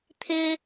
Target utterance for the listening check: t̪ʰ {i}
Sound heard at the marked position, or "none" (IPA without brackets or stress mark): ɪ